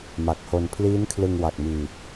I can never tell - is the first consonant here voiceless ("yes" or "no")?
no